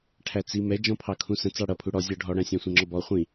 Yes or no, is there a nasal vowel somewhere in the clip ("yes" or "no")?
yes